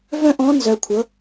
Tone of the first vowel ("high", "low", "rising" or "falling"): high